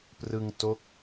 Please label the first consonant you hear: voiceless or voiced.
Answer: voiceless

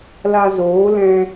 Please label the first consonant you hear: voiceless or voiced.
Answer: voiced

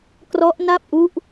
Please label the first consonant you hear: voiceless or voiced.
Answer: voiceless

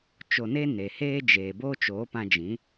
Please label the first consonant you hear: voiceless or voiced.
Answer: voiceless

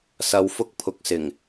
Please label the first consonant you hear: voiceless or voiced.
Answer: voiceless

